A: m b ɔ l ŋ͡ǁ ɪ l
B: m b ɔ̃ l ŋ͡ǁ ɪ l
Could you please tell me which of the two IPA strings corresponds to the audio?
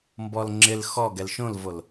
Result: A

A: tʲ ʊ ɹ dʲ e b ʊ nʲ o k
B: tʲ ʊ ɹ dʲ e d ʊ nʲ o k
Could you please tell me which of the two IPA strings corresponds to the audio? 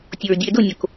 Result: B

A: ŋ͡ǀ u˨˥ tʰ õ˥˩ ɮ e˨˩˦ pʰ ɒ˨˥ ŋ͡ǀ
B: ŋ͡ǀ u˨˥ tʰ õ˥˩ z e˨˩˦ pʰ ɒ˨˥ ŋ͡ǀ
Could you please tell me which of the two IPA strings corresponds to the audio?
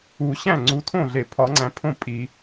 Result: A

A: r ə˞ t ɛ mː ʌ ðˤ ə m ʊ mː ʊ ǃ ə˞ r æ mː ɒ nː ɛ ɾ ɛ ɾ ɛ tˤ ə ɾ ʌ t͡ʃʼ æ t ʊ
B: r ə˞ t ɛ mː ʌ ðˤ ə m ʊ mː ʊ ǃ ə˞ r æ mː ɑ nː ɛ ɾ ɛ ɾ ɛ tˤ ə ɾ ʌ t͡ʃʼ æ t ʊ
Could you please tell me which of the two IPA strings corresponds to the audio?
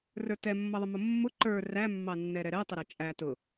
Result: B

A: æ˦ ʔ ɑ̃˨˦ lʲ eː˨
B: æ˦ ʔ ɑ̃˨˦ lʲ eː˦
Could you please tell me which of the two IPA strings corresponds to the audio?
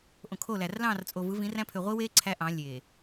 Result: A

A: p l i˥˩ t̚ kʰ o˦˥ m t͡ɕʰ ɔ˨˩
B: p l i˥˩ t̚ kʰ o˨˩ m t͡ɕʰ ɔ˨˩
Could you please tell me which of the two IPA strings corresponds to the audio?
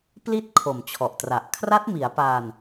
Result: B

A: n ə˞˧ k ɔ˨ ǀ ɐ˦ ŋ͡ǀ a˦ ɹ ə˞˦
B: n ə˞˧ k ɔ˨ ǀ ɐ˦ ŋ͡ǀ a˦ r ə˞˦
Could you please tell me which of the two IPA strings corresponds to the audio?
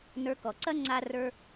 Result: B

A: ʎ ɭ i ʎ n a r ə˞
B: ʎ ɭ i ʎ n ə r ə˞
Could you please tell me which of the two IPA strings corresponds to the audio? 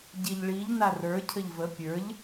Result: A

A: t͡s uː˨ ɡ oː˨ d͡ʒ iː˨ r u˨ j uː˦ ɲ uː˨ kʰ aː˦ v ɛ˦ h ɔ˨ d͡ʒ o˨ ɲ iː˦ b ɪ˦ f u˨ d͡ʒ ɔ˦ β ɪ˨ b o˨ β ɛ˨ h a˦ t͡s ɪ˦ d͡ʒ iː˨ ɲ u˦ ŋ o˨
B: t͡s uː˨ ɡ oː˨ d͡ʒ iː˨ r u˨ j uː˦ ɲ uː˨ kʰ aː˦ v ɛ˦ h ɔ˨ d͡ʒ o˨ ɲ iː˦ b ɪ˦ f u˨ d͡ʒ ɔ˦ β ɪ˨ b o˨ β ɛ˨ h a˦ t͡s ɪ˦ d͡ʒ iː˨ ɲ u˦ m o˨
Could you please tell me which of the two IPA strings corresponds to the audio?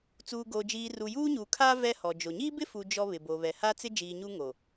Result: A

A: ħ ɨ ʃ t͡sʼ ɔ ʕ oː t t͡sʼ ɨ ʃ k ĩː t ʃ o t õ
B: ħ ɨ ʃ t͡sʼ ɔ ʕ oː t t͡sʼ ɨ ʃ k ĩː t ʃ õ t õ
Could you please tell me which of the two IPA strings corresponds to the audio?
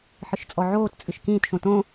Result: B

